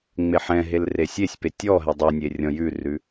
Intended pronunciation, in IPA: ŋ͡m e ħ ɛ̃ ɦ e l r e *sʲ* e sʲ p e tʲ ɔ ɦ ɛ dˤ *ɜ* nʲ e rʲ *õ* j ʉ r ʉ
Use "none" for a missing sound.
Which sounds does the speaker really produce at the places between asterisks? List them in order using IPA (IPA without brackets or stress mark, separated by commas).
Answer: sʲ, ɛ, ɔ̃